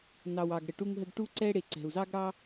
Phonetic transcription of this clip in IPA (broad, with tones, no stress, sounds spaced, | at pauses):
n ɑ˨ w ɑ˨ ɡ ɽ ə˨ ʈ u˦ ŋ ɦ ə˦ ɡ ʈ u˦ ǀ ɛ˦ ɽ e˨ ǀ ɛ̤˨ u̯ z ɑ˦ ɡ ɽ ɑ˦